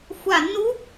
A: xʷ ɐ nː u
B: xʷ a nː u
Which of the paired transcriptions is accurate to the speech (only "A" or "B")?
B